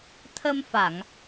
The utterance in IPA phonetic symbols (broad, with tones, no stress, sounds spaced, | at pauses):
t̪ʰ ə˧ m f a˨˩˨ ŋ